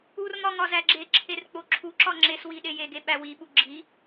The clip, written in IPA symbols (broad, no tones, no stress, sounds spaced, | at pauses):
u r m ɒ ŋ ɒ z æ ɡ͡ǁ e ǁʰ e r k͡p o ǁʰ u ǁ ɒ ŋ͡ǁ e s w i ɗ e j e ɡ e ɓ æ w i ɓ u ɡ͡ǁ i